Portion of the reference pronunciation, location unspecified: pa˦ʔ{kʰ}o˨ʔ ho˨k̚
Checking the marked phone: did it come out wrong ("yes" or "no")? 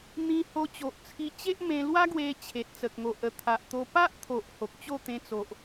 yes